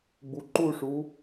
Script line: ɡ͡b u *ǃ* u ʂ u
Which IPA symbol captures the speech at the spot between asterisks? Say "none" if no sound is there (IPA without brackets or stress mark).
ǃ